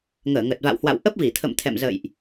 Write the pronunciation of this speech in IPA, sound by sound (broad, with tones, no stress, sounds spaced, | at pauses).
ŋ əː˧˩ ŋ ə˨˩ t̚ v a̰˧˨ w h w a̰˧˨ w ʔ ə˦˥ p̚ v i˧˩ t̪ʰ ə̰˧˨ m t̪ʰ ɛ̰˧˨ m z ə̰˧˨ j ʔ